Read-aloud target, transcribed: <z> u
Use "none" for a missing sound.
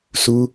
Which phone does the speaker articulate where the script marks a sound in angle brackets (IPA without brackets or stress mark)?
s